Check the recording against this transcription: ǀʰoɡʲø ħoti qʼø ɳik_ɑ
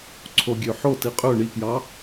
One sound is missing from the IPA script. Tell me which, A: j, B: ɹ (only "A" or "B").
A